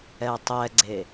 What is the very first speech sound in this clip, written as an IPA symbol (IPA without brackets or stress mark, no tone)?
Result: ɛ